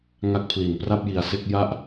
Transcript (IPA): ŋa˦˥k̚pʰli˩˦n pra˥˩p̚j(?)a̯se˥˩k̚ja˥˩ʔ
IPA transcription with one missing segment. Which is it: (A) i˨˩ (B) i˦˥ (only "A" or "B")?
A